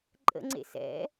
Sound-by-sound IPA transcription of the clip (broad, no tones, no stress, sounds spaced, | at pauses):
ǃʼ ə̰ ŋ͡ǀ ḛ s ɛ̰